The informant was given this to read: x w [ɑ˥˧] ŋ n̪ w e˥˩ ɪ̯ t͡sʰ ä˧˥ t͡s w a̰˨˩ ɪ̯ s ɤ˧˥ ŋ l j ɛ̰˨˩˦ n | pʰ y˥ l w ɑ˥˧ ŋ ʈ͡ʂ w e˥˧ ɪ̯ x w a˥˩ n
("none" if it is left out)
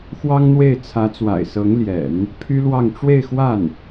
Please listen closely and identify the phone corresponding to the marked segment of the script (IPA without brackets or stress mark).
ɑ˥